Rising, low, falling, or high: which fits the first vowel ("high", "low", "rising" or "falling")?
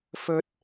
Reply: high